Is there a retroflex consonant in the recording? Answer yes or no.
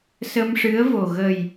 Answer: yes